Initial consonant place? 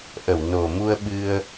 glottal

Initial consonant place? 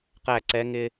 uvular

